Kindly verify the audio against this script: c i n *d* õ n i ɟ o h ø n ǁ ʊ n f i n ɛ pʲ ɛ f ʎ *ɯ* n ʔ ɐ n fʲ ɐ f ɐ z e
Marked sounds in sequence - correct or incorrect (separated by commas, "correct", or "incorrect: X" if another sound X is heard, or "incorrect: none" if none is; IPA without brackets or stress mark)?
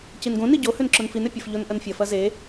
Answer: incorrect: ɡ, incorrect: ʊ